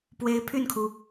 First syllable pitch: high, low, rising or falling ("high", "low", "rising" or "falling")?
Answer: rising